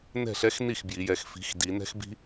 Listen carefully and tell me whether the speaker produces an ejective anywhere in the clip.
no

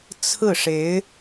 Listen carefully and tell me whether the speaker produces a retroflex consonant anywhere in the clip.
yes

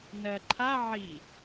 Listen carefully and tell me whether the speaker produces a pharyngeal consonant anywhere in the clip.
yes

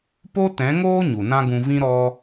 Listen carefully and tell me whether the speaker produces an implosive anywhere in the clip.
no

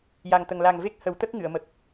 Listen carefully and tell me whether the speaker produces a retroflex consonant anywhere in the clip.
no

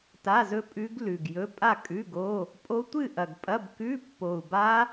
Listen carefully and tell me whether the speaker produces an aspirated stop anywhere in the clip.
no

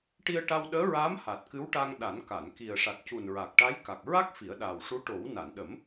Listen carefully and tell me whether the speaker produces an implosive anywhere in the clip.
yes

